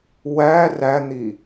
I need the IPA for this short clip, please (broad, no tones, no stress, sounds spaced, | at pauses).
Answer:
w æ r æ n̪ i